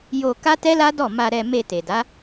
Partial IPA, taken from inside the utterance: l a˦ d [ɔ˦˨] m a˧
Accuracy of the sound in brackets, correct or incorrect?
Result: correct